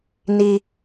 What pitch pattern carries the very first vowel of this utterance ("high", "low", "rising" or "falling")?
high